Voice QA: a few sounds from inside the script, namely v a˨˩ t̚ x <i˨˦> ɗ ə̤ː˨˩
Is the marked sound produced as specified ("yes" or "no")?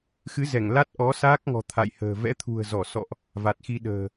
no